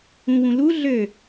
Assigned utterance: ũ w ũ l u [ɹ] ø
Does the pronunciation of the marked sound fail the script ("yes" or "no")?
yes